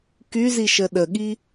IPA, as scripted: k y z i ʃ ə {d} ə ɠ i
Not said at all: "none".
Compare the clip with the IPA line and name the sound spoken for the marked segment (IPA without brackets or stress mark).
ɗ